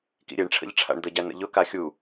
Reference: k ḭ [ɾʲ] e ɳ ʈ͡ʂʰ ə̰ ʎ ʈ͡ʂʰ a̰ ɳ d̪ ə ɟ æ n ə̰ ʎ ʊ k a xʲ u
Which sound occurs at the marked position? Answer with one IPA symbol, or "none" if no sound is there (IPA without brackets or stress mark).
ɾʲ